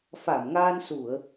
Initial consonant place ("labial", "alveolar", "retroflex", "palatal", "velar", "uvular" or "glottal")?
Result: labial